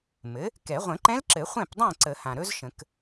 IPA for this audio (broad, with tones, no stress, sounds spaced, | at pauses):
m ɘ˩˥ | k ɛ˨˩˦ ʁʷ ə̃˨˩˦ ǃ ɛ̃˦˥ l ǁ ɘ˨˩˦ χʷ ɛ̃˥˨ p dˤ ɛ̃˥˨ ǀ ə˨˩˦ h ã˩ ɾ ɵ˦˥ z ʃ ə̃˨˩˦ k